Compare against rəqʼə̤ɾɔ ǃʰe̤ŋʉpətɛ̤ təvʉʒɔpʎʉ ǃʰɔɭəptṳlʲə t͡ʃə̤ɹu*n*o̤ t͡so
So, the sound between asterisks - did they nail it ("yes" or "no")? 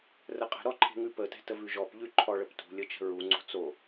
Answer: no